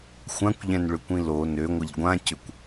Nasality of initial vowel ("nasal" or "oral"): nasal